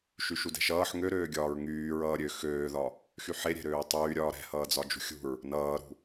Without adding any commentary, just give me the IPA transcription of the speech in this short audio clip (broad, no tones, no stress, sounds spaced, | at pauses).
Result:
ʃ y ʃ u d ɛ̤ ʃ ʌː ħ ŋ ø ɾ øː ɡʲ ɒː ɹ ŋ yː ɹ ʌː ɾʲ ø x øː ð ɒ | x y ħ e ɾʲ ɛ̤ ɾ øː tˤ yː ɾʲ ɒː ɾ ɛ̤ h ʌː d͡z ɒ d͡ʒ ṳ xʲ ṳ ɹ | n ʌː ɾ ṳ